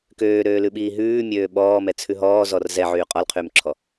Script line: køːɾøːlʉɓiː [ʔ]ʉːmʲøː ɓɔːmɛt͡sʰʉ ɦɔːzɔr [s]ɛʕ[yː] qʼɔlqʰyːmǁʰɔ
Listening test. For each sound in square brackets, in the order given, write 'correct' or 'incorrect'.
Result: incorrect: ɦ, incorrect: z, correct

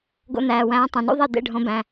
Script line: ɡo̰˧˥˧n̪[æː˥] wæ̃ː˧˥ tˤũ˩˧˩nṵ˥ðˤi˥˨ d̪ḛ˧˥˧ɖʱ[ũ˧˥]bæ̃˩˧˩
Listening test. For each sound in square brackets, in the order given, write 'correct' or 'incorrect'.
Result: incorrect: æː˩˧˩, incorrect: õ˧˥

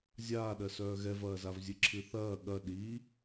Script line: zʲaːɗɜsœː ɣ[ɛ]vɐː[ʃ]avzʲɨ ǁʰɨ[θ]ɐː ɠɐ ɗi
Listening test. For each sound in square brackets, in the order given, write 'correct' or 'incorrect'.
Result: correct, incorrect: z, correct

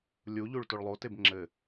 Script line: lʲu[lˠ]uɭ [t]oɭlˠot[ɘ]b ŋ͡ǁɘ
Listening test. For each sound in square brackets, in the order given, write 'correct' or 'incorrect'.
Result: incorrect: ʎ, correct, incorrect: e

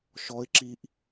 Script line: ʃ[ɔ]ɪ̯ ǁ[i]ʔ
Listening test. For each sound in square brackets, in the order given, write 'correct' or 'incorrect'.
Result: correct, correct

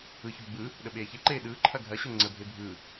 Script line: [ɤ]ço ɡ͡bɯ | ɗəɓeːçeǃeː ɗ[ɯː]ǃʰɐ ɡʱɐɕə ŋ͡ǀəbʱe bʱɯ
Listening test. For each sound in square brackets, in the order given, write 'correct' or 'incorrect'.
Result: incorrect: ɯ, correct

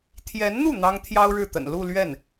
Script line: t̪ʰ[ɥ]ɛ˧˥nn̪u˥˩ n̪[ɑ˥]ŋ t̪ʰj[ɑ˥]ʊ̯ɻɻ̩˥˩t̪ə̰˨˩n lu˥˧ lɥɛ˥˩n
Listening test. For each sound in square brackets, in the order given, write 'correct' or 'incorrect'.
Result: incorrect: j, correct, correct

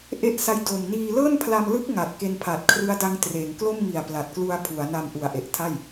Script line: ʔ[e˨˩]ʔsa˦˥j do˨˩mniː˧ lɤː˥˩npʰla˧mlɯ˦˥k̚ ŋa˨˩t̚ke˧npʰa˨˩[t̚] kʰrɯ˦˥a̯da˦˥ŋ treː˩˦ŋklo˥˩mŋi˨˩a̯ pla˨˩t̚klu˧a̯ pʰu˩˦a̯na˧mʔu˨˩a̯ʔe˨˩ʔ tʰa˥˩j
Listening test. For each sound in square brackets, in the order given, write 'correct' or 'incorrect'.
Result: incorrect: e˦˥, correct

